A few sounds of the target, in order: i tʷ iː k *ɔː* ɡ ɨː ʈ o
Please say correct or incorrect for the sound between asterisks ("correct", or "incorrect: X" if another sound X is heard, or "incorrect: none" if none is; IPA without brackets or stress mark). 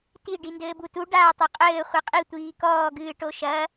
correct